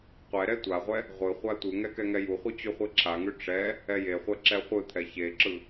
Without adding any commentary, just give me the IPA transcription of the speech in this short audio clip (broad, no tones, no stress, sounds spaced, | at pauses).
qʷ ɛ ɾ ɛ tʷ a ʁʷ ɛ | ʁʷ ɯ χʷ a tʷ ɯ ŋ ɛ k ɛ ŋ ɛ j u χʷ ɯ t͡ɕ ʉ χʷ e ǁʰ a ŋ ʉ ʈ͡ʂ ɛ | ɛ j e χʷ ɛ ǁ ɛ χʷ ɯ t̪ʰ ɛ ç e ǁ ɯ